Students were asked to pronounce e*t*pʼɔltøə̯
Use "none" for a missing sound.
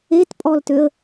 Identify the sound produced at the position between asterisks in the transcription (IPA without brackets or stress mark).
t